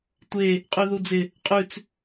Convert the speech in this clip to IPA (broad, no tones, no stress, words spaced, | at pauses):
tʷe | qʼʉðud͡zɪ | qʼʉt͡s